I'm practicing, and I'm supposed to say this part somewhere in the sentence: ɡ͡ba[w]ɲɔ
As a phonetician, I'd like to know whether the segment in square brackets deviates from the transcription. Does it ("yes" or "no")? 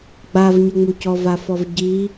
yes